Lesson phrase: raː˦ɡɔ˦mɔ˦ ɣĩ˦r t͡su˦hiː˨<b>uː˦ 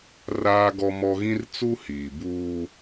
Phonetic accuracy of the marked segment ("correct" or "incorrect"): correct